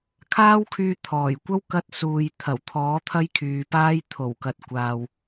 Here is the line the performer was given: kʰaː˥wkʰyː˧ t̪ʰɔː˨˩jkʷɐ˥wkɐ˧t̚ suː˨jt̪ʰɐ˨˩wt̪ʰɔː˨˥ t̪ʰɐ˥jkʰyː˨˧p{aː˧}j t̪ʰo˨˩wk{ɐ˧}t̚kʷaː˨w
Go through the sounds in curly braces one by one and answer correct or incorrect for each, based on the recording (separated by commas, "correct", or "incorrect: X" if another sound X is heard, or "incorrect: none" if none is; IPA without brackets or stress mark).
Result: incorrect: aː˥, incorrect: ɐ˨